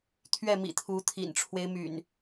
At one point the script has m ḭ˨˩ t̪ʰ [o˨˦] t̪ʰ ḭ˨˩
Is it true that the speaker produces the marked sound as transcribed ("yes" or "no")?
no